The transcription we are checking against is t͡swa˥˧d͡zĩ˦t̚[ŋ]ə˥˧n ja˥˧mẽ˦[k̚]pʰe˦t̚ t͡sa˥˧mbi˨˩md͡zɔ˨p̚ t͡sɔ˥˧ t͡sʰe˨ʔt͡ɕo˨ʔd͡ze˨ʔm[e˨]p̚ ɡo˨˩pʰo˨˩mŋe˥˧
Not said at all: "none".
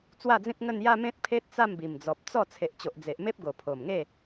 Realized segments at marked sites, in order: ŋ, t̚, e˦

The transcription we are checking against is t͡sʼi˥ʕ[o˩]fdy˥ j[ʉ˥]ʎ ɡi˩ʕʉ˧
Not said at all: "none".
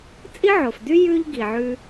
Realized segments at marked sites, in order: o˩, ʉ˥

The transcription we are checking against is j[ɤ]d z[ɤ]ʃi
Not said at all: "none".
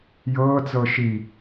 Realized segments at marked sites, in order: ɤː, ɤ

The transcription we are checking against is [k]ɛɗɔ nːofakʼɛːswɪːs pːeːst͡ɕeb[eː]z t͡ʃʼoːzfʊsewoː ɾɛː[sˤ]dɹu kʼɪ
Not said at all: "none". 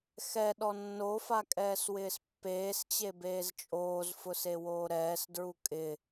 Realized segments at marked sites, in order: x, eː, s

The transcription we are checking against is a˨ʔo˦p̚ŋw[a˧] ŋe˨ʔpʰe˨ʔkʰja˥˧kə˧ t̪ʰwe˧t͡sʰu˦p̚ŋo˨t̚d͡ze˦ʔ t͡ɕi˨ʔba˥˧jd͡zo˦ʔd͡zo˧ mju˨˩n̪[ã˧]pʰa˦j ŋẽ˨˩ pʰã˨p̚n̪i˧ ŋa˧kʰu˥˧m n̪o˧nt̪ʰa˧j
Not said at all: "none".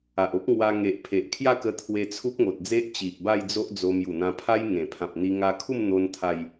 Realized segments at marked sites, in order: a˧, ã˧

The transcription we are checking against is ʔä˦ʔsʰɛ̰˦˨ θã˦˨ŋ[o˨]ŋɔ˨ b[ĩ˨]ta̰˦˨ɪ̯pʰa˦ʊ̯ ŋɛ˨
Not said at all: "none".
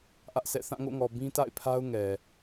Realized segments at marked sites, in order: o̰˦˨, ĩ˦

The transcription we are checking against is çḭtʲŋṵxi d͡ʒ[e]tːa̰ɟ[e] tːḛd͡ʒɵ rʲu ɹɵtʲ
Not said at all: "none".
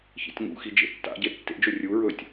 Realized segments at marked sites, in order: ḛ, e

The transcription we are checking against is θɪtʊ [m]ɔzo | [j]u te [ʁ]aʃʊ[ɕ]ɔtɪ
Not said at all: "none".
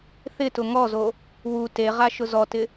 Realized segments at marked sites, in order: ŋ, w, ʁ, z

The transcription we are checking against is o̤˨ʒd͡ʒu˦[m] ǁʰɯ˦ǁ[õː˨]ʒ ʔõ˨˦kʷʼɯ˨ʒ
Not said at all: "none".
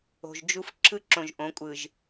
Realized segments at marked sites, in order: f, õ˨

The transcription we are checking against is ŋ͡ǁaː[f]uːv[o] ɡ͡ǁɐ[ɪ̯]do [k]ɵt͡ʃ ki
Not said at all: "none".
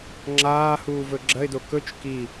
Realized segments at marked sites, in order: h, ɵ, ɪ̯, k

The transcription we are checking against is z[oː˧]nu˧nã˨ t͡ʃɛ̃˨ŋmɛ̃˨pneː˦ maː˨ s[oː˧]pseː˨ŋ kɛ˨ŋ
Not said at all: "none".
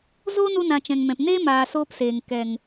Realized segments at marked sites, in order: oː˦, oː˧

